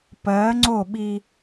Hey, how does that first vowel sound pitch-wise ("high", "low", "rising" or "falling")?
rising